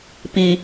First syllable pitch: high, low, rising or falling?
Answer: low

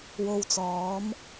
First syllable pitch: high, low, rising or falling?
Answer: low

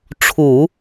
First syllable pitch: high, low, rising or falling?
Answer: low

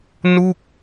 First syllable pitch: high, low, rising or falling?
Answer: falling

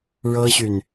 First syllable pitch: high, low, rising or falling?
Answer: high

